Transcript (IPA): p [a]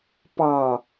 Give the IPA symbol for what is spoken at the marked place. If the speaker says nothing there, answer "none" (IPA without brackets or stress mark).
ɑ